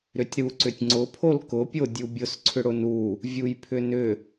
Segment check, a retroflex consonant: present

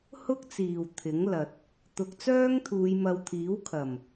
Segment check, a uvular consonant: absent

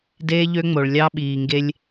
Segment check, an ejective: absent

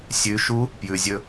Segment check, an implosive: absent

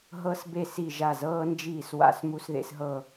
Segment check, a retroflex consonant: absent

